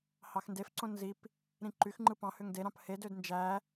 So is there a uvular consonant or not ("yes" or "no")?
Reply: no